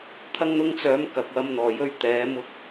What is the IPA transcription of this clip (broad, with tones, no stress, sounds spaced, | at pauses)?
t̪ʰ ɐ˧ ŋ n̪ ʊ˧ ŋ t͡s œː˨˧ m k ɐ˨ k̚ w ɐ˧ m n̪ ɔː˨ j ɵ˧ ɥ t̪ ɛː˨˧ m ʊ˧ k̚